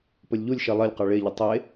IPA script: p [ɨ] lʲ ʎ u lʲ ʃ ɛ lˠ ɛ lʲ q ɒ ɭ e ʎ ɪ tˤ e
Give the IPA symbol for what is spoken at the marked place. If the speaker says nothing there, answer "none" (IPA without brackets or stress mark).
ə